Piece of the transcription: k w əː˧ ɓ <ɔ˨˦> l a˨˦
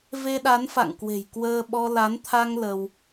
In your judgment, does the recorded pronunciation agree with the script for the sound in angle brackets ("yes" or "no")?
no